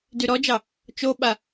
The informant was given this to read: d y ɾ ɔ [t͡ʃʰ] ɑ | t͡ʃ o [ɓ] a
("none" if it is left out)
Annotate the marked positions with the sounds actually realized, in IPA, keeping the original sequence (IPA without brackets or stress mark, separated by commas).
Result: d͡ʒ, ɓ